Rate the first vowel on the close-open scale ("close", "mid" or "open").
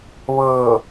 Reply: mid